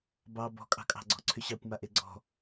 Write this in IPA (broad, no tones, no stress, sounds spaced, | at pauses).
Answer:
b ɑ b ɔ̤ kʼ ɑ̤ kʼ ɑ̤ ɡ͡ǀ ɔ̤ ǀʰ ʏ ɕ ɑ kʷ m a ʔ e ɡ͡ǀ ɔ̤